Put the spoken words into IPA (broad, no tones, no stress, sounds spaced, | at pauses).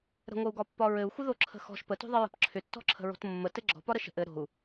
ɾ ə̤ ŋʷ ə u̯ ɡ ɒ pː ɒ ɹ ɘ u̯ xʷ ə ð o ǁʰ ə̤ x ɔ̤ ʃ p ə t o̤ ðˤ ə ɹ ə̤ p ǁʰ ʏ tː ɔ̤ ǁʰ ə̤ ɹ o̤ t mː ə t ɘ ɡ͡ǁ ɔ̤ p ɒ ɾ ə ʃ ə̤ ʔ ɘ ɾ o̤ u̯